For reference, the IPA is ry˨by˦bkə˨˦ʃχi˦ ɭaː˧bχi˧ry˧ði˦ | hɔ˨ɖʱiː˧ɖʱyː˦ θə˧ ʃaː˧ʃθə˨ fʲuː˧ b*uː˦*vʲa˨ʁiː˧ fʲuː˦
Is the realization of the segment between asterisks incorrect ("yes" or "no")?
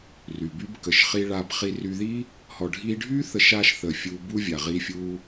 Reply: no